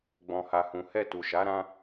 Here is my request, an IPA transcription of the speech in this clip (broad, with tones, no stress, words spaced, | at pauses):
ɡ͡bɔ̃˧ha˧hũ˧ hɛ˧tu˨ʃa˨˦ ɾã˦